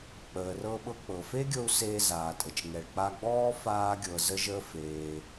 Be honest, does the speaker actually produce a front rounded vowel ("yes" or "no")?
no